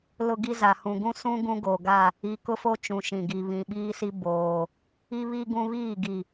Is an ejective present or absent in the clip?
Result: absent